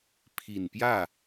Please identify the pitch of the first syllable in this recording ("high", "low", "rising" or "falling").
low